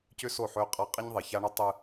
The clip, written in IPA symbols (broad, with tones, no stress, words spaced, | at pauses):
cʏ˦so˦˨ħø˦qʼa˦ qʼe˦ɲðˤe˨ça˦ɳø˦ tˤɨ˦